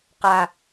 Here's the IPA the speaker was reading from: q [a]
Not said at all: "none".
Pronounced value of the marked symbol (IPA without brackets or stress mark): a